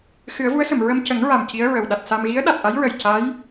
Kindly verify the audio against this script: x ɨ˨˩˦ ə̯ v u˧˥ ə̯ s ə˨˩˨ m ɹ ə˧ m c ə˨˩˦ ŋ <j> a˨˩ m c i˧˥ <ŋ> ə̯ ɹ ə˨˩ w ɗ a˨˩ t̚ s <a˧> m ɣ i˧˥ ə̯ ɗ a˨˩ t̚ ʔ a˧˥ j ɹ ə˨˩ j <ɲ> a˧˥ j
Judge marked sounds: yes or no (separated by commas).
no, no, yes, no